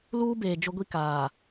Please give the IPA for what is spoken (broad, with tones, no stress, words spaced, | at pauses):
luː˦beː˨ d͡ʒʊ˦ɡʷi˦kaː˨